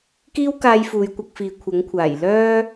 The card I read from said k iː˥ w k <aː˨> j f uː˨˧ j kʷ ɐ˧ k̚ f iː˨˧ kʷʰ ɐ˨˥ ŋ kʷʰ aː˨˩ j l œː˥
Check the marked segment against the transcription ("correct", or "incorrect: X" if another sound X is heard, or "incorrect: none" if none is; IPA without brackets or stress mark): incorrect: aː˧